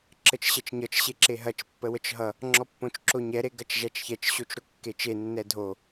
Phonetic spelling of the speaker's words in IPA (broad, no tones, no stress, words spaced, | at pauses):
ǁət͡ʃɕɐt͡ʃɲʌt͡ʃ ɕeǁeɦɐt͡ʃ pːəwət͡ʃɦʌ | ŋ͡ǁɔpːõt͡ʃǁoɲɛ ɾeɡɐt͡ʃʒæt͡ʃçɛt͡ʃ ɕot͡ʃɾokːet͡ʃe nːɛdʱo